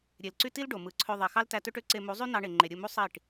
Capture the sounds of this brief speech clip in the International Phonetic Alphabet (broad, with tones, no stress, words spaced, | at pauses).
ɾʲe˨lǀy˦ti˦l ɖo˨ mɯ˨ǀʰø˧ ðˤe˨xɑ˦ltæ˧tø˦ʈ ø˦ǀe˧mu˨˦ zˤy˦nɑ˧ɳe˨ ŋ͡ǃe˨ɾʲɯ˦˨mu˦ sˤi˦˨ʈ